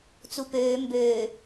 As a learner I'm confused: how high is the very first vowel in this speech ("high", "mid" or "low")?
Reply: high